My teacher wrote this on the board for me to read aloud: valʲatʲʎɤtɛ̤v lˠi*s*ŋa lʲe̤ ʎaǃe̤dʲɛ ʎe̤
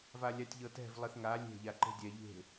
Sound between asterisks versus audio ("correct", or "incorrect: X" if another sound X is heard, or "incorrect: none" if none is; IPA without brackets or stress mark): incorrect: θ